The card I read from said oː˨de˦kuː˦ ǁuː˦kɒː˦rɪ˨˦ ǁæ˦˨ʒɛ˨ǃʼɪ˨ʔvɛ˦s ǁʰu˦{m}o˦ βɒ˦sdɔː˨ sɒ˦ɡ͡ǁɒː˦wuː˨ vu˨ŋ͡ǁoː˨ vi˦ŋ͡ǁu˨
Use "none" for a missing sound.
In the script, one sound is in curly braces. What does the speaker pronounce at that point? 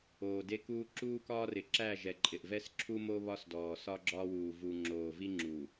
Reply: m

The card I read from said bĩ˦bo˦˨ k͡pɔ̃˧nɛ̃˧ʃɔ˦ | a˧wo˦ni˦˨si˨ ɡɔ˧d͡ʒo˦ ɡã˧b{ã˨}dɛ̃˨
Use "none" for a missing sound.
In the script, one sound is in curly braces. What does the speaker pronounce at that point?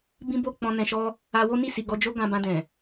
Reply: ã˧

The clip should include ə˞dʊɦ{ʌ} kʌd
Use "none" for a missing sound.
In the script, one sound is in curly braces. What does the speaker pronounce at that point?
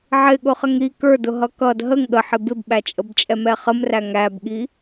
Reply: ʌ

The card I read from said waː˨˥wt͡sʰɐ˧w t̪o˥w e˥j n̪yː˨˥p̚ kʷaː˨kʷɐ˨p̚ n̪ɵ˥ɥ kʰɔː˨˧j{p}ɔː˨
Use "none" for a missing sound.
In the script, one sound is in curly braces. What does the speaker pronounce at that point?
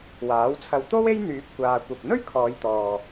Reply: t̪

